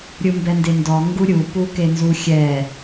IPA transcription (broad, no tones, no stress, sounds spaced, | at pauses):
ɾʲ ɯ m b ɛ n d e n d ɔ ŋ ɡ u ɾʲ u p u k e n z u xʲ ɛ